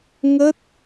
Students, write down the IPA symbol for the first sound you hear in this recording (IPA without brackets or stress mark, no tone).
ŋ